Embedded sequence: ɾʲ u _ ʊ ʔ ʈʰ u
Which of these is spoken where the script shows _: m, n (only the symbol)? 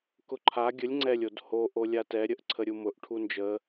m